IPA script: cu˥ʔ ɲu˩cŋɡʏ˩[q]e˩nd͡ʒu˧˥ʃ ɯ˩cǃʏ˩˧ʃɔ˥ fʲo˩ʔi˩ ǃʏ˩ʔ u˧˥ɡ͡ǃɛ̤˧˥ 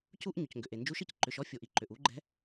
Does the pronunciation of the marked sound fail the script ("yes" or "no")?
yes